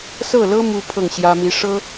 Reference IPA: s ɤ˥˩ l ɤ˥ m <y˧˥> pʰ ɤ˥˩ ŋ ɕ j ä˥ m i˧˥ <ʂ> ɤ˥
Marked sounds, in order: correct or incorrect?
incorrect, correct

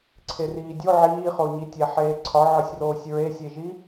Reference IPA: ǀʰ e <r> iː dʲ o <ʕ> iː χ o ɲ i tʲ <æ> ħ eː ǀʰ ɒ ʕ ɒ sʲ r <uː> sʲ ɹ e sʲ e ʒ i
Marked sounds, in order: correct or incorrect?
correct, correct, correct, incorrect

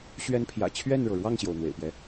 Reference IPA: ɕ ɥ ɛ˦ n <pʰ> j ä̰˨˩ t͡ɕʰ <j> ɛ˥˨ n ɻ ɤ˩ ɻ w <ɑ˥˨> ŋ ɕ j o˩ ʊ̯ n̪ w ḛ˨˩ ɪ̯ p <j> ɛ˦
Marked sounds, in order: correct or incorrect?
correct, incorrect, correct, correct

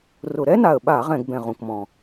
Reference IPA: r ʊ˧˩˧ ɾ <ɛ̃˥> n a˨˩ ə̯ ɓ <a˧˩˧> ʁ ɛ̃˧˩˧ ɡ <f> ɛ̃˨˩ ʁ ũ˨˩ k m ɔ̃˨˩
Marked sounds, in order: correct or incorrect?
incorrect, correct, incorrect

